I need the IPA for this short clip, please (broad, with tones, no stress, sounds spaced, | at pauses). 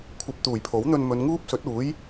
kʷʰ ɐ˧ p̚ t̪ uː˨˩ j pʰ o˨˥ w n̪ ɵ˧ n m ɵ˨˧ n ŋ uː˥ p̚ s ɵ˨˥ t̚ uː˨˥ j